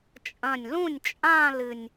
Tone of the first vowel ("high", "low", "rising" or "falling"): low